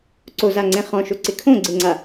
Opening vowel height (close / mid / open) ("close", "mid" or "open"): mid